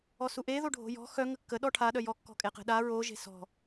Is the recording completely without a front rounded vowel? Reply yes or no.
no